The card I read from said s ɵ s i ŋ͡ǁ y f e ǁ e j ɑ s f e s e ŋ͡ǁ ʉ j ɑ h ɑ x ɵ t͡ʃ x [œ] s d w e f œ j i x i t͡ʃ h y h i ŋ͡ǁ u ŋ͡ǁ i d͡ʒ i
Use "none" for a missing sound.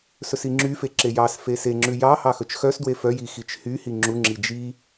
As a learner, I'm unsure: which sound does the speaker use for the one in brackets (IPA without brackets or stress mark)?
œ